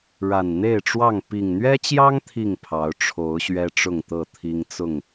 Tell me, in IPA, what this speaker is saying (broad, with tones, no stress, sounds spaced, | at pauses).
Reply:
ɻ a˨˩ n n̪ e˥˨ ɪ̯ ʈ͡ʂ w ɑ˥˨ ŋ p i˨˩ ŋ n̪ ɥ ɛ˦ t͡ɕ j ɑ˦ ŋ t̪ʰ i˥˨ ŋ pʰ ɑ˨˦ ʊ̯ ʈ͡ʂʰ o˨˦ ʊ̯ ɕ ɥ ɛ˦ ʈ͡ʂ ʊ˥˨ ŋ t̪ ɤ˥˨ t̪ʰ i˦ ŋ t͡s ʊ˥˨ ŋ